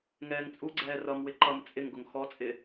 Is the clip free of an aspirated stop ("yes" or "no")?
yes